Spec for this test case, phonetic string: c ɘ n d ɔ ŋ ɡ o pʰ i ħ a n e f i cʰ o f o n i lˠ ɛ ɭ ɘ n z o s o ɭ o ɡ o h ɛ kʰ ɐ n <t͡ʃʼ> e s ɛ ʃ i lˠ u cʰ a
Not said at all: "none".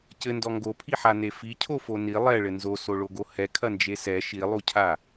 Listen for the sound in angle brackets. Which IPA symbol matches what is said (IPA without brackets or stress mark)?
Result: d͡ʒ